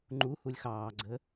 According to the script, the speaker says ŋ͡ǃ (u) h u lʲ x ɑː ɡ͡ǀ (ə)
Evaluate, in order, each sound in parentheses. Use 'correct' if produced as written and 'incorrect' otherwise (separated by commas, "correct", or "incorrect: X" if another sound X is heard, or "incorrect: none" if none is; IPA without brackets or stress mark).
correct, correct